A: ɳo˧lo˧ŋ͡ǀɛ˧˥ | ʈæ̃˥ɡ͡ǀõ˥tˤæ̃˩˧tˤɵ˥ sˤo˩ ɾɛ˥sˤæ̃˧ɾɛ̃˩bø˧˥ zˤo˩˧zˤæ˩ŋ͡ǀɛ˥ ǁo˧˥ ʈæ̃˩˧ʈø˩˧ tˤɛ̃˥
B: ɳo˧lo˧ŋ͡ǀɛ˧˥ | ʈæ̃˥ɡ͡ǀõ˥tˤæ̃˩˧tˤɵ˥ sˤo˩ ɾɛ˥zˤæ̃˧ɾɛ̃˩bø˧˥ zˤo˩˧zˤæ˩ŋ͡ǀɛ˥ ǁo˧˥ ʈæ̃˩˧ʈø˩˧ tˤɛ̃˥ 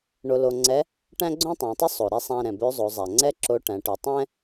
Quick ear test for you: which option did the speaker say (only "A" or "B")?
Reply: A